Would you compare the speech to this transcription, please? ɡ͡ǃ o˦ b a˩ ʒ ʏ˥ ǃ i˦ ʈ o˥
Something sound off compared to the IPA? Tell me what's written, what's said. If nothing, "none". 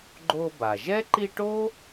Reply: ʏ˥ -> ɛ˥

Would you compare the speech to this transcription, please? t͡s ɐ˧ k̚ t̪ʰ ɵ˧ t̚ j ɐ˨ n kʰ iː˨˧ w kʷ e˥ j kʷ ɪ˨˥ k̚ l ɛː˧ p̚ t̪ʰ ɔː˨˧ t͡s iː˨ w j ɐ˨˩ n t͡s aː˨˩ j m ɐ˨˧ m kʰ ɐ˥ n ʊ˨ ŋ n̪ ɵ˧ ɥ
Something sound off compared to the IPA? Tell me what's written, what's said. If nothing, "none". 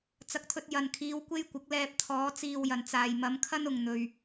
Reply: none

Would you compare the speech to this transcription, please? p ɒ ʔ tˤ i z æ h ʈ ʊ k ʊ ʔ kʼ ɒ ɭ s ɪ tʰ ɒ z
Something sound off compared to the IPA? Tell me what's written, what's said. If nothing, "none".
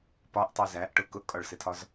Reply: h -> ʔ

